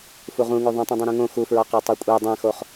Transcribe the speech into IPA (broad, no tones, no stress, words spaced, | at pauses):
fuʁũŋo ðˤũtˤĩdˤũ ɾũŋõ xufɹɒqæ tˤokʷʼe dˤæ̃xoχ